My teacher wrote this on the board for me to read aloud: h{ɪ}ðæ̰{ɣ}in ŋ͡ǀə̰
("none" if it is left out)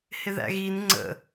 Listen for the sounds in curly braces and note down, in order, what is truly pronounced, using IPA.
ɪ, ɣ

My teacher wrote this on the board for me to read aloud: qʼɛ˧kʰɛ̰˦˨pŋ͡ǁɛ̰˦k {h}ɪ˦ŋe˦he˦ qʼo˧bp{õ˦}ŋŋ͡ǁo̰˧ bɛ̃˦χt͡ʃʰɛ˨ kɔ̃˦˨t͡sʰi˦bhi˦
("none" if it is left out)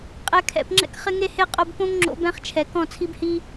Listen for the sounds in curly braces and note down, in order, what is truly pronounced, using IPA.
χ, õ˦

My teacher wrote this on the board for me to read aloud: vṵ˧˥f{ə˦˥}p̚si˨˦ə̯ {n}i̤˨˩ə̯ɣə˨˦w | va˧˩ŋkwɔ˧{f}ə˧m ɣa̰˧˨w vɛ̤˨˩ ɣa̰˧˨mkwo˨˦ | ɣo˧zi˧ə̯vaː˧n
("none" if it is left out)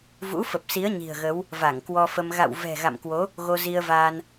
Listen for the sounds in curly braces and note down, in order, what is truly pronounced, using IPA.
ə˨˩, ɲ, f

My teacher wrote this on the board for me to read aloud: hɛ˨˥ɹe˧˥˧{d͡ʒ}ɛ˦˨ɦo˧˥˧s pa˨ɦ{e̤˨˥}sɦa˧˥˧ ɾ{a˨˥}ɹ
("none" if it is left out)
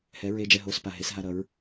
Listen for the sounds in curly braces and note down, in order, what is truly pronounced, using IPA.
d͡ʒ, e˨˥, ʌ˨˥

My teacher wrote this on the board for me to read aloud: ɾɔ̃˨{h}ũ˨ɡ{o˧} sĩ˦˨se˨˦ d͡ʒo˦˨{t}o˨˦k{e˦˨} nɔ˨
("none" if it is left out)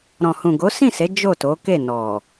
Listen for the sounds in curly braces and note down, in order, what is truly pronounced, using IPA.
h, o˨˦, t, e˦˨

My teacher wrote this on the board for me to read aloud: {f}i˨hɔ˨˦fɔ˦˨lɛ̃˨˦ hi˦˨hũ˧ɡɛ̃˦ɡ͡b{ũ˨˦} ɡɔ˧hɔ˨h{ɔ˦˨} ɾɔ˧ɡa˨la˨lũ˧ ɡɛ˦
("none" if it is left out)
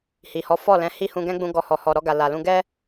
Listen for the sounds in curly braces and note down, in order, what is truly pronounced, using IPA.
h, ũ˧, ɔ˨

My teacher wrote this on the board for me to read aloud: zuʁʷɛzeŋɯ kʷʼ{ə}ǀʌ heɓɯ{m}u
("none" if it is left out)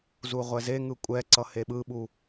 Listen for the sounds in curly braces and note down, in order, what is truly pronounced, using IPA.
ɛ, ɓ

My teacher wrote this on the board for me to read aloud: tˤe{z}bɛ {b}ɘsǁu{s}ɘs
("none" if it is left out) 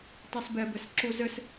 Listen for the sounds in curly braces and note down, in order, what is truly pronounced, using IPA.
s, b, z

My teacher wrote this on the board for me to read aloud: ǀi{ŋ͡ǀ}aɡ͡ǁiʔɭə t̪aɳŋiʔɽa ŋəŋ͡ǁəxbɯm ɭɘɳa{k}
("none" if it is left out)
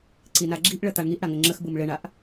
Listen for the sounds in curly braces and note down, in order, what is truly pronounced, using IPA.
n, ʔ

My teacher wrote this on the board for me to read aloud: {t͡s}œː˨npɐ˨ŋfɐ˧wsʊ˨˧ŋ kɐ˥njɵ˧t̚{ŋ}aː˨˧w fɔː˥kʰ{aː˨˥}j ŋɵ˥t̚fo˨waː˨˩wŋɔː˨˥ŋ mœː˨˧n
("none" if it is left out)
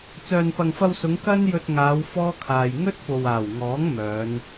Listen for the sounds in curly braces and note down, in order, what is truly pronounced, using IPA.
t͡s, ŋ, aː˨

